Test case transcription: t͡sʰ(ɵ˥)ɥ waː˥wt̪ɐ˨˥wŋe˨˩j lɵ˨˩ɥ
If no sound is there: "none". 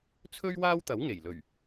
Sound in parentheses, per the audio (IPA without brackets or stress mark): ɵ˥